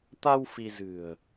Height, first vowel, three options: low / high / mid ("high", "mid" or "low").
low